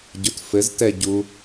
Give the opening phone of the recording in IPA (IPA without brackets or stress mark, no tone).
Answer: ɟ